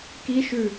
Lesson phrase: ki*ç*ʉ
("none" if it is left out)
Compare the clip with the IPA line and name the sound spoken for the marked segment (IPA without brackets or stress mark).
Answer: ʃ